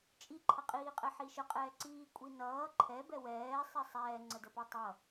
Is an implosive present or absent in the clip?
absent